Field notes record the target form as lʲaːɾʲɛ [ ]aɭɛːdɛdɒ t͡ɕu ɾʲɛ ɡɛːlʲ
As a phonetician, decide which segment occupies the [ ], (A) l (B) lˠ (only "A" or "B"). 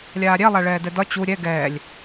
B